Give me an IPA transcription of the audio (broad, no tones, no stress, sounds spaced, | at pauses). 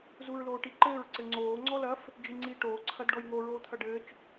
z u ɹ l oː ʈ i ǃ ɘː ɹ ǀ ɘ ŋ͡ǀ oː ŋ͡ǀ ɔ l ɐ f | d͡ʒ i ŋ͡ǀ iː ʈ oː ǀʰ ɐ d ɖ ɔ j ŋ o ɹ oː t̪ʰ ɐ ɖ ɘː t͡ʃ